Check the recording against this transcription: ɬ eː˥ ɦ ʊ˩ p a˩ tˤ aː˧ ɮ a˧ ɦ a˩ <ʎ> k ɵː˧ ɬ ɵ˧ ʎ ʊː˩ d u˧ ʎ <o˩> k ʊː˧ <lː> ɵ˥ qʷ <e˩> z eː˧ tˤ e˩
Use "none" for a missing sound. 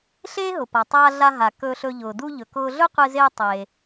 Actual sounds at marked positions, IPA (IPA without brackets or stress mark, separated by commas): none, ɵ˩, ɮ, e˧